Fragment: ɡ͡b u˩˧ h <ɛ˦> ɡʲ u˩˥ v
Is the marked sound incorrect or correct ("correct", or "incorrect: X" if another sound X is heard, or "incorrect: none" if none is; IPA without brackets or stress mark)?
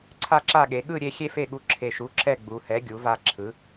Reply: incorrect: ɛ˩˥